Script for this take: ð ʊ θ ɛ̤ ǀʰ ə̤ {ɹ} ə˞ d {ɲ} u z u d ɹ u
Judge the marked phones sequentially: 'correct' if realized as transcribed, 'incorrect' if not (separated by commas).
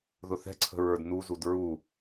correct, incorrect